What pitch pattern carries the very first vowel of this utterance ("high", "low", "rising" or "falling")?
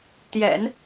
low